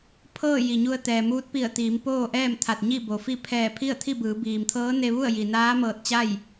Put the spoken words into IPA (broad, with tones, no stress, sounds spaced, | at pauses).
pʰ ɤː˥˨ j i˩ ɲ u˧ ə̯ t̪ ɛː˩ m uː˧˥ t̚ p i˧˩ ə̯ t̪ iː˩˧ m p oː˥˨ ʔ ɛː˥˨ m t̪ʰ a˧˩ t̚ ɲ i˥˨ b o˩ f i˥˨ pʰ ɛː˧˩ pʰ i˥˨ ə̯ t̪ʰ i˥˨ b ɯː˩˧ b iː˩ m t̪ʰ ɤː˧˥ n e˧ ʋ u˥˨ ə̯ j i˩ n aː˧˥ m ɤː˧˩ t̚ t͡ɕ a˥˨ j